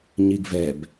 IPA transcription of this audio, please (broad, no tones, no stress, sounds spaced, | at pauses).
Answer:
ɲ i ɡ v ɛ b